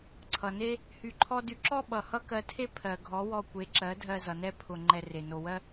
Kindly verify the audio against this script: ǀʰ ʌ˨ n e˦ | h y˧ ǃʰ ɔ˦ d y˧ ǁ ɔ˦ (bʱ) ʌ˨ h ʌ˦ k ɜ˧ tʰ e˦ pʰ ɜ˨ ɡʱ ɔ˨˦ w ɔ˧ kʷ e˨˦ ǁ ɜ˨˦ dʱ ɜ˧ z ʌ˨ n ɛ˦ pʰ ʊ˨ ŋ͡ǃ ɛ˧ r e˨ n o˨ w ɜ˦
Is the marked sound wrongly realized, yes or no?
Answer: yes